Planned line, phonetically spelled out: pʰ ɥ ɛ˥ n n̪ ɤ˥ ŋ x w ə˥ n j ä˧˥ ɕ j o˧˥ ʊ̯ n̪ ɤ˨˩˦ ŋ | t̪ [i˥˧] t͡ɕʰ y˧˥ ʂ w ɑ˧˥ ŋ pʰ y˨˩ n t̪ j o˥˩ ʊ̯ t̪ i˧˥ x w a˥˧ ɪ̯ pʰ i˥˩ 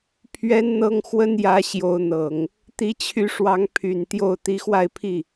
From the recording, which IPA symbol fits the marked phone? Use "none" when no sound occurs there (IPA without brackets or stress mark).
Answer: i˧˥